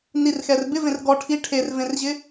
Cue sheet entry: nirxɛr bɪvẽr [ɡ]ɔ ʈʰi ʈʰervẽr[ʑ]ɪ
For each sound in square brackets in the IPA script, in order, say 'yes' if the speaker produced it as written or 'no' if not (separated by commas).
yes, yes